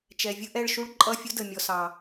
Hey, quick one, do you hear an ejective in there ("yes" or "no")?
yes